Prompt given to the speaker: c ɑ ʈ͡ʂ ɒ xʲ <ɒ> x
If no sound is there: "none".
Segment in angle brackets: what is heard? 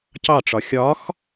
ɒ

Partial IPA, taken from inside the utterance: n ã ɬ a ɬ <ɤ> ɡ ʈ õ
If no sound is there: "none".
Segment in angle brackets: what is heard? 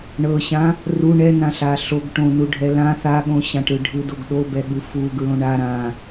o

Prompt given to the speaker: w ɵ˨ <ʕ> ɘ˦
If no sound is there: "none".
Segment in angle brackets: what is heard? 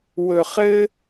χ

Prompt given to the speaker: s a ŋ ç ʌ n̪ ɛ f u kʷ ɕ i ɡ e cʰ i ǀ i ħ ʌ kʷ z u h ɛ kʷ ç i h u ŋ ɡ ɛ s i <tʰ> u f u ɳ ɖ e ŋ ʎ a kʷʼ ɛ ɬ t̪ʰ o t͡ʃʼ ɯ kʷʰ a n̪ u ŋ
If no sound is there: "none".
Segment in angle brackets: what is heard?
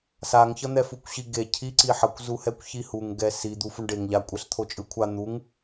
d̪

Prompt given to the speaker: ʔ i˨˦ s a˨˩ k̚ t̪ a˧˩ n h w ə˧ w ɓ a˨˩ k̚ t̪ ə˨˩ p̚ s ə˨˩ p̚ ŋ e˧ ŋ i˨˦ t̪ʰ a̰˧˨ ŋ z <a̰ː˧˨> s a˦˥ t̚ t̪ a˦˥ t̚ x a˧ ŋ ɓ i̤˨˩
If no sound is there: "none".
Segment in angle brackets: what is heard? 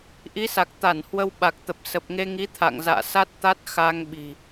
a̰ː˧˨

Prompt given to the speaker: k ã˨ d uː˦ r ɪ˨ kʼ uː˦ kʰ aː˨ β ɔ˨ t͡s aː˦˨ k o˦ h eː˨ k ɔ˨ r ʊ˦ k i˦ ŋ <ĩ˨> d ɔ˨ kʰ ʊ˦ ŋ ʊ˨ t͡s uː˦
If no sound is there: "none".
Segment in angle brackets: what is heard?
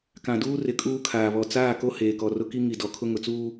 i˨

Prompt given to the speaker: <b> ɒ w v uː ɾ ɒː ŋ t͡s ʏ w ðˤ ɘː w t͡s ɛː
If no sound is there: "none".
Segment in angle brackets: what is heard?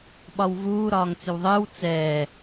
ɓ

